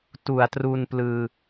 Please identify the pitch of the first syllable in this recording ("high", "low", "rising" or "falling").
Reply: low